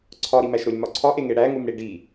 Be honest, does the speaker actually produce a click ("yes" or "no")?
yes